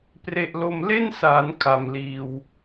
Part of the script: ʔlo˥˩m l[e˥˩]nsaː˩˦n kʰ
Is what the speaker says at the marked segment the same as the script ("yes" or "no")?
yes